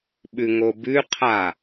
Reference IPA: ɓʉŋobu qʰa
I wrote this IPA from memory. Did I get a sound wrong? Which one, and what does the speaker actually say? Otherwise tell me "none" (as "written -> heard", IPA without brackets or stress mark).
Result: u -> ʉ